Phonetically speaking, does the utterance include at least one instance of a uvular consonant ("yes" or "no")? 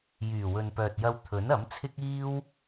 no